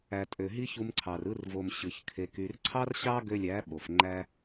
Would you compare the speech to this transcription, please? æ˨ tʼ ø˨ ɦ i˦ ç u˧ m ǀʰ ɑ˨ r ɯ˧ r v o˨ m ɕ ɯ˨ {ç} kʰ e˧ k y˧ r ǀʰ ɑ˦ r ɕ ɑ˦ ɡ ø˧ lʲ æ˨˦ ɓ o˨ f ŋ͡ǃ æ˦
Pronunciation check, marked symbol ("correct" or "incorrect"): correct